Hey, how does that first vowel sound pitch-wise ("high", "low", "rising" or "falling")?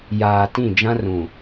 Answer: low